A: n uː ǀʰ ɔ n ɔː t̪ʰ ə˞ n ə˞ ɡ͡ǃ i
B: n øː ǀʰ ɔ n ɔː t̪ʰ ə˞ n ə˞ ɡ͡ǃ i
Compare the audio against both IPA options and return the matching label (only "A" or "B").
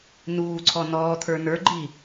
A